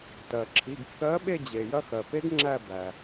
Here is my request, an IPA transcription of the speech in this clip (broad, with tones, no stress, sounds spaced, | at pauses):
t ɜ˩ ǁʰ i˩˧˩ ɡ kː ɜ˨˥ ɓ e˦˨ d͡ʑ e˩ j ɐ˦˨ x ɜ˩ p e˦˥ ɡ ŋ͡ǁ æ˦˨ b æ˩